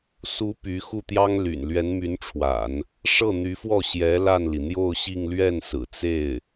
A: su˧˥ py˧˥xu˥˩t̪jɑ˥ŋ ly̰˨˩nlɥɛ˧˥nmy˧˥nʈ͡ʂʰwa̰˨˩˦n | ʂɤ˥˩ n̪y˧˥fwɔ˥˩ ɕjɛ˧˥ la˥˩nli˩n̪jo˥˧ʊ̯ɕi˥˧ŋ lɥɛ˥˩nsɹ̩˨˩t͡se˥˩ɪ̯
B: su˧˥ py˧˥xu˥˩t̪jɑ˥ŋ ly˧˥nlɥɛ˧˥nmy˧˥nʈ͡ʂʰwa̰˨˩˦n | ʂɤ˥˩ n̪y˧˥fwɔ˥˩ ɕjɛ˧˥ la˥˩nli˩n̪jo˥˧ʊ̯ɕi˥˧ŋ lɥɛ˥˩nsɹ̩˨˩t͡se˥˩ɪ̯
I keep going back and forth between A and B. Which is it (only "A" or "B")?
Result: A